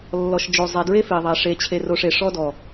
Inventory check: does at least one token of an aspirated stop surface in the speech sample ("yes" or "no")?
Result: yes